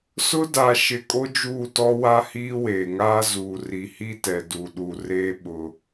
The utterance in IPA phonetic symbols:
sʊ˦ da˨ʃɪ˨ kʼo˦d͡ʒuː˦˨tɔ˦wa˦ hiː˦weː˨ŋaː˦ zuː˨ri˨hi˦tɛ˨ du˨ɗu˨ reː˦ ɓʊ˦

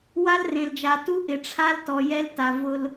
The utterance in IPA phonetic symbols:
wa˦lrẽ˨ld͡ʒa˨ tu˦ʔɪ˨ʈ͡ʂʰa˦ltɔ˨ jɛ˦lta˨ vʊ˦l

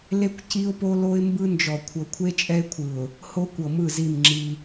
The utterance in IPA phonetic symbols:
le˦kʷ ci˦ʊ̯po˦ lo˦ɪ̯mbɯ˦nd͡ʒɔ˨ kʷʰɤ˨kʷʰe˦t͡ʃʼɛ˦ɪ̯kʷʰɯ˨ʊ̯ | ho˦kʷɤ˨mɯ˦˨zi˦˨m ŋ͡ǁi˦

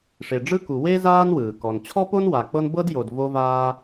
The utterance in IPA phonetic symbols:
ʂe˨ɖ͡ʐɯ˥ku˨ we˥ zaː˥nwɯː˩kɔ˨n t͡ɕʰɔ˥po˥nwa˨k͡pɤ˦n bɤ˥djo˨d vo˥vaː˥

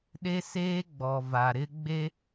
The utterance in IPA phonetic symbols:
ɗe˦seː˦ɡ͡bɔ˨ va˨ɾɪ˦ɡ͡be˦

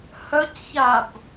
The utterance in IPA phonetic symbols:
hœcçab

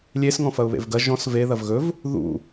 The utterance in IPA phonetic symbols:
lʲesŋɔ̃ fɐʊ̯βḛvɡɐ ʒɔ̃s ve ðɐvɣɵv | ðṵ

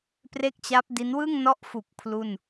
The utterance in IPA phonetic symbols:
pre˥˩k̚t͡ɕa˦˥p̚di˦˥n wɯ˥˩ŋnɔ˦˥ʔfu˨˩k̚ pʰlu˥˩n

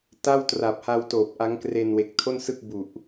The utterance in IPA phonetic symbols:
ta˥˩wtra˨˩p̚ha˧w toː˨˩p̚ʔa˦˥ŋkre˧n we˨˩k̚tʰo˥˩nsɯ˥˩k̚ bu˨˩ʔ

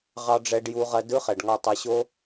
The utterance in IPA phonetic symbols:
ʁɑ˧ɖ͡ʐɛ˧ɖju˧ ʁɐ˧dɯ˧˥χɛ˩ɖŋɒ˧ tˤɐ˧ɕo˥

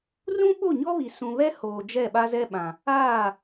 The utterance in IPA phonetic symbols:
rũ˦ɓo˦˨ɲɔ˦βi˨ sũ˨βɛ˦ hoː˨d͡ʒɛ˦˨ ɓa˦zɛ˦ɓã˨ | aː˦˨

